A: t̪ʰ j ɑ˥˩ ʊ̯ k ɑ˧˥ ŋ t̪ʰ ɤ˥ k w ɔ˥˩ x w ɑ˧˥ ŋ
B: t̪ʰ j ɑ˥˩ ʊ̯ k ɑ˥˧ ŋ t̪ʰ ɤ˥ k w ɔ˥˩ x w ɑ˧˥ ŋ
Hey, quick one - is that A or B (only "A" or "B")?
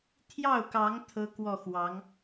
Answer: A